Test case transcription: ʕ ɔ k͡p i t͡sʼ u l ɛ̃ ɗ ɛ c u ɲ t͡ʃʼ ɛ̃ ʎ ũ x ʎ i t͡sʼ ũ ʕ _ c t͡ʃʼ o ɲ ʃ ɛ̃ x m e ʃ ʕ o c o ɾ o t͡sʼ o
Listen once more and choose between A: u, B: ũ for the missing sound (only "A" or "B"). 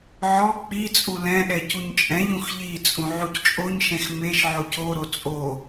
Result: A